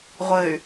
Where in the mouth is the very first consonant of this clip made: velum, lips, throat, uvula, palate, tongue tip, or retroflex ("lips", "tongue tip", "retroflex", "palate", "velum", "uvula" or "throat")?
uvula